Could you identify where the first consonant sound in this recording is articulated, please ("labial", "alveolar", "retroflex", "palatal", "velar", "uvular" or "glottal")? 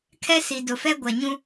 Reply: velar